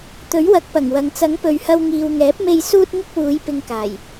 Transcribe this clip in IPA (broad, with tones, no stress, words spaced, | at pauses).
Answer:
t̪ɵ˨˥ɥwɐ˨˥k̚pɐ˨˩ŋwɐ˨ŋ t͡sɐ˨˥ŋpɵ˨ɥhɐ˧w ŋiː˨wŋɛː˨˥p̚me˧j suː˧t̚ŋɪ˧k̚ wuː˨˧j pɪ˧ŋkaː˨˩j